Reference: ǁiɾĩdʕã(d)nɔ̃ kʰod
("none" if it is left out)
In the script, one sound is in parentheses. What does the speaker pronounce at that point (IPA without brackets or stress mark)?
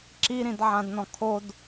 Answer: d